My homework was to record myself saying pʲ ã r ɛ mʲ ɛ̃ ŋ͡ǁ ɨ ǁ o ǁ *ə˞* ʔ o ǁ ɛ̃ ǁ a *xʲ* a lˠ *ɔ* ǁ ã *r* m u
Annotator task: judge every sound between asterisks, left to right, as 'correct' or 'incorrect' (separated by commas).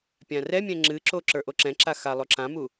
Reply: correct, incorrect, incorrect, incorrect